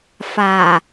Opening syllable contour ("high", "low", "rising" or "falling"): low